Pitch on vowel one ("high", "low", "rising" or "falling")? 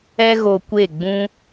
high